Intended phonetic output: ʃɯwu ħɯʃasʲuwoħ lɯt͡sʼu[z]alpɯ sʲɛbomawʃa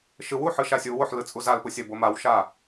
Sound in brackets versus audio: correct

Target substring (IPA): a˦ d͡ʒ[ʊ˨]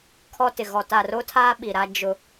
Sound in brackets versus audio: incorrect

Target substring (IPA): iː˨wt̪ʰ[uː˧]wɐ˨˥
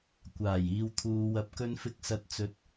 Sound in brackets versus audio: incorrect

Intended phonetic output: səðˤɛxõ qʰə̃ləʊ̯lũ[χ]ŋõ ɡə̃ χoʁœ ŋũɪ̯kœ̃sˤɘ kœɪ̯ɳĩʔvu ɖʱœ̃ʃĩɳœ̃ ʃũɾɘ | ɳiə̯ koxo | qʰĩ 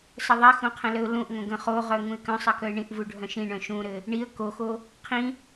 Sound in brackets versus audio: incorrect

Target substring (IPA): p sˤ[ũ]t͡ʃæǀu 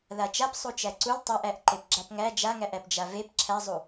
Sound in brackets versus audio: incorrect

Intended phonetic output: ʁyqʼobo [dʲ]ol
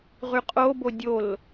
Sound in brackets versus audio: correct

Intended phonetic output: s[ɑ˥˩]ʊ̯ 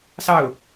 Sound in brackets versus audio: correct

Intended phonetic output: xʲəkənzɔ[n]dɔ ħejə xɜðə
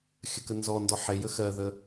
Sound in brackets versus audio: correct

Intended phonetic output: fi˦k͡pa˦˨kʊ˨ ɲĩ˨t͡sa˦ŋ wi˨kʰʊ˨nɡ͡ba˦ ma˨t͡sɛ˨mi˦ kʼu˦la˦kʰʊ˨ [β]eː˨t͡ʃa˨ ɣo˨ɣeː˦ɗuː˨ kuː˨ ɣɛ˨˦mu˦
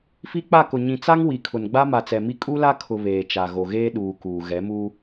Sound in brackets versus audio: correct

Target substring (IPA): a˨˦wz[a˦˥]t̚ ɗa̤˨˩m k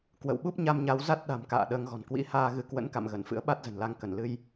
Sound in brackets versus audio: correct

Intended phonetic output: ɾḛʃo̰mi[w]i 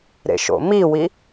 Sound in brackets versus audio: correct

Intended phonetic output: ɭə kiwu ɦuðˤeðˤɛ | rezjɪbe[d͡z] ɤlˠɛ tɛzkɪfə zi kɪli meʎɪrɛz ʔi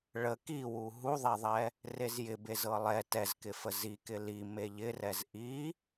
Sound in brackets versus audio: incorrect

